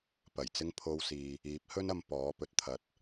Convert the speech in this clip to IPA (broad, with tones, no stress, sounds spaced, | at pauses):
p ɐ˨˩ j t͡s ɪ˥ ŋ pʰ o˥ w s iː˧ | iː˨˥ p̚ h ɵ˥ n ɐ˧ m p ɔː˨˥ p ɵ˨ t̚ t̪ʰ ɐ˨˥ t̚